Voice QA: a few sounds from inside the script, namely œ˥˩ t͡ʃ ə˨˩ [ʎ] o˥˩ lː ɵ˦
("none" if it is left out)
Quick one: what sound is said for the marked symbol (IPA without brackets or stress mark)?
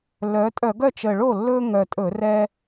ɭ